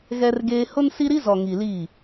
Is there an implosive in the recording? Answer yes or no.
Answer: no